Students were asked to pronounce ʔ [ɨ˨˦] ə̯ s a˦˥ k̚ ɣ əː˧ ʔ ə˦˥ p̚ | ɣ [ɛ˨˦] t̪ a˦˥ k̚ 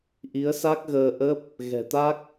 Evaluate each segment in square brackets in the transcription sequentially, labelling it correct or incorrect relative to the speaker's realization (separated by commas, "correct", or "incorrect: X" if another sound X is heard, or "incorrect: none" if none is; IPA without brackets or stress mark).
incorrect: i˨˦, incorrect: ɛ̤˨˩